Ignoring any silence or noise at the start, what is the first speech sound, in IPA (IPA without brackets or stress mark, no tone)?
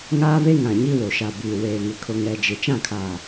ŋ